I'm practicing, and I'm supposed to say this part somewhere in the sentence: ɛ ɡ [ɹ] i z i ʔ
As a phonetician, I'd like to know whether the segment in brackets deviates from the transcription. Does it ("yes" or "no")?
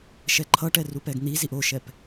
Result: yes